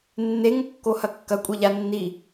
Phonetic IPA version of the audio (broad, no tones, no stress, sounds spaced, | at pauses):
nː e ŋ o kː o h ɐ kː ɐ kʷʼ e ʎ a nː i